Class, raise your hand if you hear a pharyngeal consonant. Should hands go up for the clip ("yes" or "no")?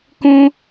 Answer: no